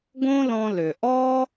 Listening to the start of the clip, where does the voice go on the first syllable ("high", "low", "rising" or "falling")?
high